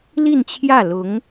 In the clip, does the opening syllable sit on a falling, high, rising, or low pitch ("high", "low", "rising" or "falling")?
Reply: falling